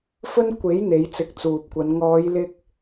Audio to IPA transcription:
fɵ˥n kʷe˨˥j n̪e˨˧jt͡sɪ˨˥k̚t͡suː˨p̚kʷɐ˨˧n ŋɔː˨˧jlɪ˧k̚

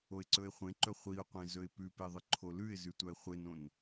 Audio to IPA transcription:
oɪ̯ǀɵɪ̯χʷẽǃɵ χʷiʊ̯qʷẽ zɵɪ̯pʉpe ðˤɨǃʰolʉɪ̯zʉ tʷaɪ̯χʷenõn

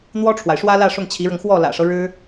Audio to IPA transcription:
n̪wɔ˥ʈ͡ʂʰwa˨ɪ̯ʂwä˥lä˥˧ ʂʊ˥˩ŋt͡ɕʰi˧˥ɻɤ˧ŋ xwɔ˥˩ lä̰˨˩ʂɤ˦ ɻɻ̩˥

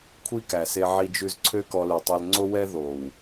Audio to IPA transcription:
kʷʰi˦kæ˨se˧ ʕi˧d͡ʒʉ˧z ǀʰø˦kɔ˧lʉ˨tˤo˧l ŋ͡ǀo˦wɛ˦ ðo˨w

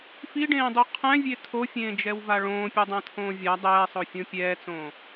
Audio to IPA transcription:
fiɖẽːdˤu qʰɛ̃vʲe tʰofʲẽːd͡ʒɛwva ɭõːpʲɛdˤãtʰõː vʲa dˤɛːsˤofʲõ pʲɛːt͡sõː

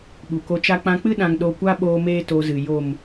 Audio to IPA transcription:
ɓu˨ko˧t͡ʃa˦ k͡pã˧k͡pɨ˦ ɗã˧ŋɗo˧kʷa˦ɓoː˧ meː˦to˧zɨ˨ jo˨m

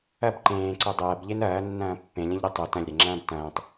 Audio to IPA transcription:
ɐb ǃẽːǀo dˤɐːbʎen ɐːnːɐ̃ː pːẽlʲɐ̃ʎɾe tˤo tɐ̃lʲɾeŋ͡ǁɐ̃ːb tɐ̃ːtˤ

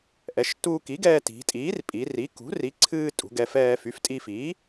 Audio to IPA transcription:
ʔɛ˩˧ʃtuː˧ki˩˥ɡɛː˧ ti̤˩˧tʼiː˩˥rpʼi˩˧ri˩˥ kṳ˩˥ri˩˥ǀʰɨː˧ tʼṳ˩˧ɡɛ˩˧fɛː˧ fy˩˥ftʼi˧fiː˩˥

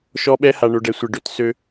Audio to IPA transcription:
ʃɔ˧ɓɛ˧ ha˨ɳo˨ɖɛ˨sʷɘ˨ ɖø˧t sø˦

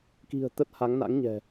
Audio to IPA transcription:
ki̤˨˩ə̯ t̪ə˦˥t̚ha˨˦ŋna̰˧˥ŋɲɛ̤˨˩

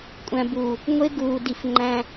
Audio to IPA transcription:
kʷʼæ̃˧ buː˨ | ŋʷe˦ɡuː˨di˨f ŋ͡ǃæ̃˧

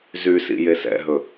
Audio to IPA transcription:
zysḭ jesɛ̰ɦɵ

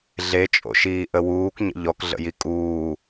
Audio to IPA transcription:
ɮet͡ʃʼo̰ʃiːʔə wuːkɲə̰ ʎɔkɮə̰ji kʼuː

